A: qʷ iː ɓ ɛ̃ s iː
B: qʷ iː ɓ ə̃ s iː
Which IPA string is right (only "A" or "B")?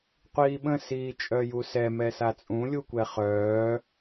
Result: B